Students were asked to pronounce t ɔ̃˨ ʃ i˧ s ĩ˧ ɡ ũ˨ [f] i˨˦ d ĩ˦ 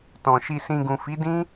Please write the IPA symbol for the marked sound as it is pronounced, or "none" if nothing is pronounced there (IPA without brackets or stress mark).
f